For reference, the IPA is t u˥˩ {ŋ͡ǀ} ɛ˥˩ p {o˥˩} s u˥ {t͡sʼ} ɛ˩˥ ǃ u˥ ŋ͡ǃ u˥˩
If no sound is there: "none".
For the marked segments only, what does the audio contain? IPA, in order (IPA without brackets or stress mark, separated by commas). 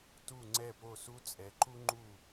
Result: ŋ͡ǀ, o˥˩, t͡sʼ